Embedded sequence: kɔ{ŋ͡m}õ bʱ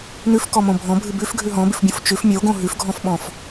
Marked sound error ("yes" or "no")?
yes